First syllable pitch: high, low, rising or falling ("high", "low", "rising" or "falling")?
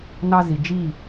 high